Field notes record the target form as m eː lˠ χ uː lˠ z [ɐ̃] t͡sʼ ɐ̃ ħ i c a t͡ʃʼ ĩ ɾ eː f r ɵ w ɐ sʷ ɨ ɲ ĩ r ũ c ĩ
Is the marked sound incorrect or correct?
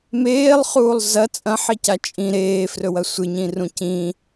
incorrect